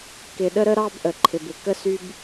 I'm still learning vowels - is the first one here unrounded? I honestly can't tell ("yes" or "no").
yes